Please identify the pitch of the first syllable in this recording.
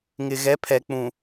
low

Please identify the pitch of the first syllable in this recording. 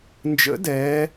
rising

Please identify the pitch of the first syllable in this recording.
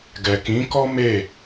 low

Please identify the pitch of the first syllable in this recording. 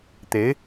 rising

